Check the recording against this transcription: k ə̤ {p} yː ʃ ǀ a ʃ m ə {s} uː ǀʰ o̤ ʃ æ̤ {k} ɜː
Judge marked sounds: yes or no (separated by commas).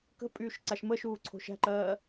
no, no, no